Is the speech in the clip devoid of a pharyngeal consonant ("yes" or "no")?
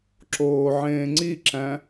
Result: no